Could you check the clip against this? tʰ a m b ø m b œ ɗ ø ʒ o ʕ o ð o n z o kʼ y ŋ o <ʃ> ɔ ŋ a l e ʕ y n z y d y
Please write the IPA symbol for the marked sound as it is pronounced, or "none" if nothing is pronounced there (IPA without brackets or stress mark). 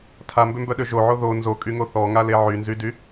θ